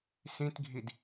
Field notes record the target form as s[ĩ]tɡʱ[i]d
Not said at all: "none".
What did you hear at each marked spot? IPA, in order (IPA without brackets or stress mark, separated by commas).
ĩ, i